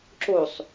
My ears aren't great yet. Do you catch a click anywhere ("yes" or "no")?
yes